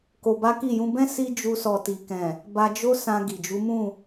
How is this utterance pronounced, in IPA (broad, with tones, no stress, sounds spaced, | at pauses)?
k o˧ b a˦ k i˦˨ j ũ˧ b ɛ̃˦ s i˦ d͡ʒ u˧ s ɔ˨ t i˨ k ɛ̃˨ | b a˧ d͡ʒ o˦ s ã˧ ɡ i˨ d͡ʒ u˨˦ m ũ˦˨